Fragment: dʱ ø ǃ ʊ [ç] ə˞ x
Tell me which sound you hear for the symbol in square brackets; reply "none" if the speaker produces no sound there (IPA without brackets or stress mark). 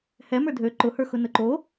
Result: h